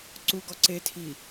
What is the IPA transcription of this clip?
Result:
ǀ u ɡ ɔ ǀ e tʰ i

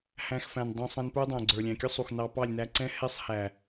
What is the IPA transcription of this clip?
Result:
h æ̃˧ x f æ̃˨ n dˤ ũ˨ sˤ ɛ̃˧ n p ə˞˦ dˤ æ̃˨ ɡ͡ǀ ə˞˨ lʲ æ̃˨ kʲ ʊ˦ sˤ u˨ x n ɑ˧ p ɑ˦˨ lʲ n æ˧ ǀ ɛ̃˦ h ɛ˦ sˤ h æ˨

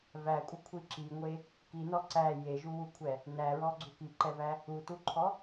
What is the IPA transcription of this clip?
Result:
v æ kʷʼ ə kʷʰ i ǁ i ŋʷ e | k i n ɔ ǀ æ j e ʒ u w u kʷʰ ɛ | n æ ɹ ɔ ɡ͡ǀ u k i ǃ ɛ v æ | u t u ǃʰ ɔ

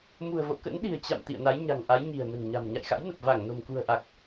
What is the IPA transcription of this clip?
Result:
m ṳ˨˩ ə̯ v o̰˧˨ k ə̰˧˥ n ɗ i̤˨˩ ə̯ t͡ɕ a̰˧˨ m t̪ ḭ˧˨ ə̯ n a˨˦ j ɲ a̤˨˩ ŋ ʔ a˨˦ j ɲ i̤˨˩ ə̯ n ə̤˨˩ n ɲ a̤˨˩ m ɲ a̰˧˨ j x a̰˧˥ j n ə˨˩ p̚ v a˧˩ ŋ n o̤˨˩ m k ṳ˨˩ ə̯ ʔ a˨˩ k̚

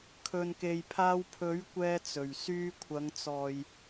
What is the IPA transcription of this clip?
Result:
kʰ ɵ˨ n k e˨ j pʰ aː˧ w pʰ ɵ˨˥ ɥ kʷ ɛː˧ t͡s ɵ˨˩ ɥ s yː˧ kʷʰ ɐ˨˧ ŋ t͡s ɔː˨ j

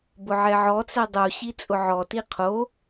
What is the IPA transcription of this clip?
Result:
b ʊ ʕ ɛ ʕ ɔ t͡s ɛ dˤ u ɕ i t͡sʼ ʊ ʕ ɔ t i qʰ o

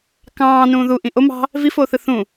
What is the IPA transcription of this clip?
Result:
k ɑ̃ː n ũː ð u ʔ ĩ ʔ o m ɑ̤ | v i f oː θ ɯ θ ũ

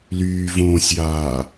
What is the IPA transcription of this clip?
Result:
l yː v õː sʲ j aː

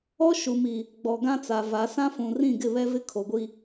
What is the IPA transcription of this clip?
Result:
ɔ˦ ʃ u˨ m i˨ | ɡ͡b ɔ˨ ɡ ã˦ t͡s a˨ v a˨˦ s ã˦ f ũ˨ r ĩ˦˨ ɡ ɪ˦˨ β ɛ˦ v ɪ˦ kʰ o˨ ɡʷ i˦

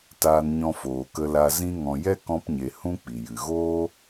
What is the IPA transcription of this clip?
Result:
t aː˧ n ɲ ɔ̃˧ f oː˨ k ə˧ l a˧ z ĩ˧ ŋ ɔ̃˨ j ɛ˦ k ɔ̃˧ p ɲ e˨ h ũ˦ k͡p i˨ j ɨ˨ ɣ oː˦

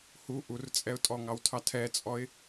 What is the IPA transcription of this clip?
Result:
h u ʔ u r t͡sʼ ɛ ʊ̯ tʼ ɔ ŋ ɑ w tʰ ɑ tʰ ɛ t͡sʼ ɔ ɪ̯

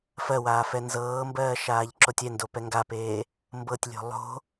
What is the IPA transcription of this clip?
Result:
f ɜ w aː f ɛ n z ɤː m b ɜː ʃ aː ʎ ǁ o tʲ ɛ n d o p ɛ ŋ ɡ a p eː | m b ɤ tʲ lʲ o̤ lˠ o̤

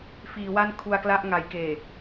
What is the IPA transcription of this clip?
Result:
f iː˩˦ w a˥˩ n kʰ u˧ a̯ k l a˥˩ ʔ ŋ a˩˦ j k eː˨˩

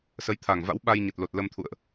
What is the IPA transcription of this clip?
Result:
s ə˨˦ j t̪ʰ a˨˩ ŋ v a̰˧˥ w ɓ a˧ j ɲ ə˨˩ t̚ l o˨˩ t̚ l ə˧ m t̪ʰ ṵ˧˨ ə̯ ʔ

